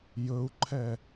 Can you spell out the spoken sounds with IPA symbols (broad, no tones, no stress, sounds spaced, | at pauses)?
j ɵ u̯ ǃʰ ɛ